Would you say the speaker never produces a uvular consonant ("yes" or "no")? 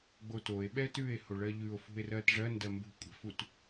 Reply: yes